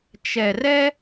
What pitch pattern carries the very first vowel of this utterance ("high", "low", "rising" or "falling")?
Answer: low